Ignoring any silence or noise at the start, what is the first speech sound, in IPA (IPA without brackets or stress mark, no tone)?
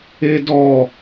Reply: e